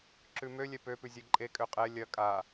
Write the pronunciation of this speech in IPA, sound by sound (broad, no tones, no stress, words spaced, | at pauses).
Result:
ǁʉmølʲɛ pøpʉzʲɛ ǃʼe kʼøqʼɛ lʲɐ kʼa